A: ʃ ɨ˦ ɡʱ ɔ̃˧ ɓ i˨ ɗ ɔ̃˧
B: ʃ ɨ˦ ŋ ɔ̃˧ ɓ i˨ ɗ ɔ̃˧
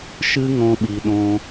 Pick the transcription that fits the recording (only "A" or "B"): B